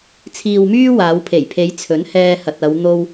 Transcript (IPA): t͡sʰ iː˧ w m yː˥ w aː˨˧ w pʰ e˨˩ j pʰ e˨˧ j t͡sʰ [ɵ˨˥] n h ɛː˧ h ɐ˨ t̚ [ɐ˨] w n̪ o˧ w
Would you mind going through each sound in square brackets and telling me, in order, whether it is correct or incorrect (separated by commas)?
correct, incorrect